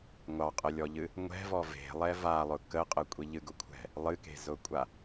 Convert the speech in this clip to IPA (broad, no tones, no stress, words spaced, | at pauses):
ŋʷɑqʼəlʲɔʎɨ | ŋʷɛ̤vɔ ve̤lˠɛ valˠʊ kəqʼəkʷʼi ʎɨɡʊkʷʰɛ̤ | lˠɨke̤zʊkʷʼa